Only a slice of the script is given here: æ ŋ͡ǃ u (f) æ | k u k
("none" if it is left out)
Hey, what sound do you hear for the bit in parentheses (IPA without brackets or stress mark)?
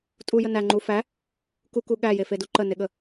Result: f